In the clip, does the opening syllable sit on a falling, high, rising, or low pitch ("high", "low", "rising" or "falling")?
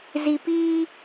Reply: low